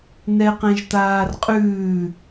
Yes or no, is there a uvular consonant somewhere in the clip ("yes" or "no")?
yes